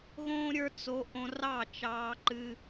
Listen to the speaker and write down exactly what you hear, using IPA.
ɣõː˦ɾʲə˞˦t͡so˧ ʔõ˧rɑ˦˨ t͡ʃɑː˦ǃɨ˦

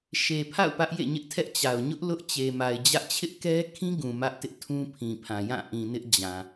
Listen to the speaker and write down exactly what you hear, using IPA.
ʃe˨pʰa̰˦˨ʊ̯ pä˦ʔjḛ˦˨ɲɪ˦ʔtʰɛ˦ʔ t͡ɕa˨ʊ̯ ɲʊ˦ʔ lʊ˦ʔ t͡ɕe˨ma˨ɪ̯d͡ʑä˦ʔ t͡ɕʰɪ˦ʔkɛ˦kʰĩ˦ ɡũ˨mä˦ʔtɪ˦ʔtʰũ˦ pʰĩ˨pʰã˨jã˦˨ ʔĩ˨ nɪ˦ʔ d͡ʑã˨

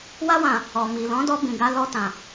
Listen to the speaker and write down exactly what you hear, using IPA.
wa˧wã˨ | ɔ˨mi˨ lɔ̃˨˦dɔ˧ bĩ˨ɡa˧ lɔ˧tã˨

